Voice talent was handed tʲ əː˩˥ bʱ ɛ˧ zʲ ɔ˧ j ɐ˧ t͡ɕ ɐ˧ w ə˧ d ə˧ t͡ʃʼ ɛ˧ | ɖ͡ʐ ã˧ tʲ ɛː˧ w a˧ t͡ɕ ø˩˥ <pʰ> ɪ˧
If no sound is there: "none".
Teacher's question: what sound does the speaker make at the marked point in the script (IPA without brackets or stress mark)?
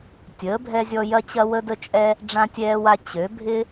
bʱ